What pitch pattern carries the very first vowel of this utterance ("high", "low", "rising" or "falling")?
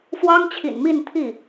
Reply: high